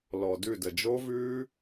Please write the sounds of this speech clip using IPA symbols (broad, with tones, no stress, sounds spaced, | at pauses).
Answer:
l ɔ˨ d ʉ˦˨ d ə˨ d͡ʒ o˦ v ʉː˦